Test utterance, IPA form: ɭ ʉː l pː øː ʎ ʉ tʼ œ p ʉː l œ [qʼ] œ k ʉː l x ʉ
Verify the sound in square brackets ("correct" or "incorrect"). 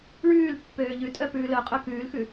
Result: correct